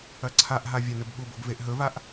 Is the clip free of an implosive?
no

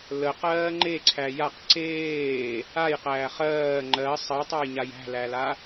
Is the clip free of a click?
no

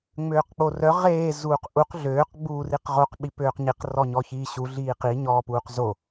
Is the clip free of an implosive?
no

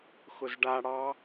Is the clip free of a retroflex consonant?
no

